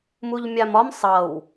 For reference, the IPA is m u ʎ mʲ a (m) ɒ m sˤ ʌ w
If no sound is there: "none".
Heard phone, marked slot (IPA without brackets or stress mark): m